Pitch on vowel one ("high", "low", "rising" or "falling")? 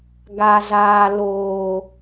low